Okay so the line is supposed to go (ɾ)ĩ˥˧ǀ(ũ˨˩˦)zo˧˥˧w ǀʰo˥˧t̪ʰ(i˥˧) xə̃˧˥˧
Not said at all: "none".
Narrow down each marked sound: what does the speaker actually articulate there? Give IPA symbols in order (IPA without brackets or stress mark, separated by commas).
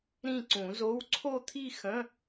ɾ, ũ˨˩˦, i˥˧